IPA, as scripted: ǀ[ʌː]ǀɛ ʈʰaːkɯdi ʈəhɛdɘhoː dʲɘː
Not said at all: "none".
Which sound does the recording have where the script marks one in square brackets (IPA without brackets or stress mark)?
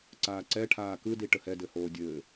aː